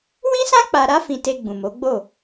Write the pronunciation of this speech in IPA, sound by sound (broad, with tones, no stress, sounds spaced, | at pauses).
w ĩ˦ s ã˦ k͡p a˧ ɾ a˦ f ĩ˧ t e˧ ɡ͡b ũ˨ m o˨˦ ɡ͡b o˦˨